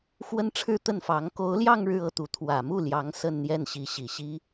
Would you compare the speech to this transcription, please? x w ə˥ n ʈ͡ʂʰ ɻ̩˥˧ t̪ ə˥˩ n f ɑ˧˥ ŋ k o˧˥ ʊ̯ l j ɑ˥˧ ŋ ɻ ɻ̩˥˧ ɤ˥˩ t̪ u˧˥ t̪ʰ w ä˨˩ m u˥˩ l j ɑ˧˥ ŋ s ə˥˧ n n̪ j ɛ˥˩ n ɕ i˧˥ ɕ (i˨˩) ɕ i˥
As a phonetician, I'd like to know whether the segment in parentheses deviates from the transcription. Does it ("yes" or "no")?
no